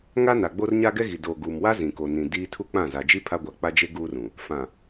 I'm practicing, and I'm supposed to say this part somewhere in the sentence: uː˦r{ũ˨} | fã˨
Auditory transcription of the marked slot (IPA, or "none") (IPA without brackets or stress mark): ũ˨